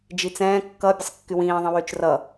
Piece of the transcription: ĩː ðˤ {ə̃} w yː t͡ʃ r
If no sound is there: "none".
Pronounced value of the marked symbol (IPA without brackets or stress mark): ə̃